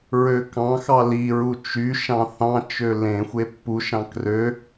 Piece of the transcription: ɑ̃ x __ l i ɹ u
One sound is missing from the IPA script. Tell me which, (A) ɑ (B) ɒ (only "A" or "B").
A